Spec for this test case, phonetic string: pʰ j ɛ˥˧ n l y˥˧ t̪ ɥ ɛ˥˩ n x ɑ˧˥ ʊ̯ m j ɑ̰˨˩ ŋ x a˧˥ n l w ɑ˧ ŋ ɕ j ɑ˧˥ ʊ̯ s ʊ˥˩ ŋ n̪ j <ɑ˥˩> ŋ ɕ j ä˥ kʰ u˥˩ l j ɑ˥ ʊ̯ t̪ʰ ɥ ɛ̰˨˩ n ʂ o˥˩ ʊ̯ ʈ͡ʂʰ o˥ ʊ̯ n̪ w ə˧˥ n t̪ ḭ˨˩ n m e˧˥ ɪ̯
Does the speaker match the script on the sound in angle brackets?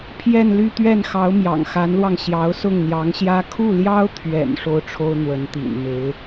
no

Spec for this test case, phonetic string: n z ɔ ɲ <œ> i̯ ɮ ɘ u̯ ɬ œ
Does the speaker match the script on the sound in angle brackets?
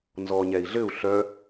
no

